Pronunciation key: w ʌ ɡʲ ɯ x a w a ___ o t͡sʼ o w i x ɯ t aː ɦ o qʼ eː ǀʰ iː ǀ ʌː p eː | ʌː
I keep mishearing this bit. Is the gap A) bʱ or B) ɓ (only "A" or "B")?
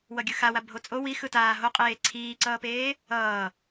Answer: A